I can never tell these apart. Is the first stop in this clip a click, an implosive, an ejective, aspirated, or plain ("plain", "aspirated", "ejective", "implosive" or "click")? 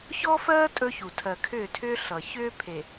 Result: ejective